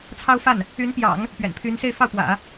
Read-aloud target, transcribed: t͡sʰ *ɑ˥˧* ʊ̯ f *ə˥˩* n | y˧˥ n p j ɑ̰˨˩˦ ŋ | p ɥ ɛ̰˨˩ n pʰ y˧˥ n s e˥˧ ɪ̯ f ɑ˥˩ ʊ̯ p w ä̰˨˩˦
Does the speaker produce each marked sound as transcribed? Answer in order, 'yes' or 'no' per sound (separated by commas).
no, no